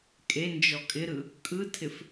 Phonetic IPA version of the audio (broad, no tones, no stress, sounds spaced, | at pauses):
kʼ e n d͡ʒ ɔ kʼ ɪ ɾ ɯ | kʼ ɯ tʰ ɪ f